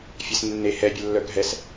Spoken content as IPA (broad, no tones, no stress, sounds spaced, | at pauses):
fʲ ɛ s nː e h ɛ bʲ ə lː œ ɡʱ ɛ s